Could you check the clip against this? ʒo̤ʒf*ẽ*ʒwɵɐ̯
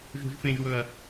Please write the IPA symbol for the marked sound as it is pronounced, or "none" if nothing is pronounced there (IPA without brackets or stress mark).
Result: ẽ